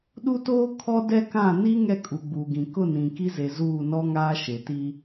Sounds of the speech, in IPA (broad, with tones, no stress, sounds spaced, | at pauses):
ɗ u˦ t oː˦ kʰ ɔ˦ d ɛ˦ k ã˦˨ n i˦ ŋ ɛ˦ kʼ u˨ ɡ͡b uː˨ ɡ ĩ˨ k ʊ˦˨ n ĩ˨ k i˦ z e˨ z uː˦˨ n ɔ˦ ŋ aː˦ ʃ e˨ t i˦